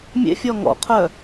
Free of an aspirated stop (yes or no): no